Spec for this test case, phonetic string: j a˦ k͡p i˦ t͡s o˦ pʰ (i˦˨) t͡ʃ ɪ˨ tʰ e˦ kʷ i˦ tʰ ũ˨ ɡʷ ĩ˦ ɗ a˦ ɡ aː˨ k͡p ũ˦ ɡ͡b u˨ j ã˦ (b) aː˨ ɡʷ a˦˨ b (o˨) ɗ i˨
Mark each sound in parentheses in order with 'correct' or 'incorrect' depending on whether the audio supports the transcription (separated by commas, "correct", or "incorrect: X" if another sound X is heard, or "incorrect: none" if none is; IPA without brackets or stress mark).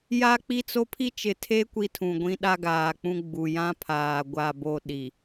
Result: incorrect: i˦, incorrect: pʰ, incorrect: o˦